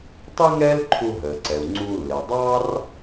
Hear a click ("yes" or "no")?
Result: yes